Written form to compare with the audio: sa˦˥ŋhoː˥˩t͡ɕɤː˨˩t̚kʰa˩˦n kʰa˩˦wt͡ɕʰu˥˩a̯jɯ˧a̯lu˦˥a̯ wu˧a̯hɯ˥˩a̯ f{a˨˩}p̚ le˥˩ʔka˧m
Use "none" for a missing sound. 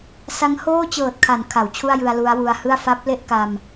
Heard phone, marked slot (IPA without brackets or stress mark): a˦˥